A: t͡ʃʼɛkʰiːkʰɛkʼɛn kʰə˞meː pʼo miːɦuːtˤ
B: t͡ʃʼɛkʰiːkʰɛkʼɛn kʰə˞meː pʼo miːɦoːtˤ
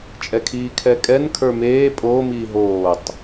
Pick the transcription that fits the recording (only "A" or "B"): B